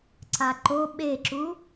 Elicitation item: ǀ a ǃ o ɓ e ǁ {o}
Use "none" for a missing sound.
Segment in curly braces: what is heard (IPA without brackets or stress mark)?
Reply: u